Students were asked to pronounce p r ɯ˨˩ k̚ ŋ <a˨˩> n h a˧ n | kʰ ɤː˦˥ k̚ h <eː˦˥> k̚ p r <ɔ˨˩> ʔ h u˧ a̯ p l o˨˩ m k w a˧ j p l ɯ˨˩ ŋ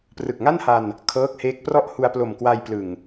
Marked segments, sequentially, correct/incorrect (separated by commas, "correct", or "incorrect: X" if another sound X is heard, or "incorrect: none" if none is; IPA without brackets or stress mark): incorrect: a˥˩, correct, incorrect: ɔ˥˩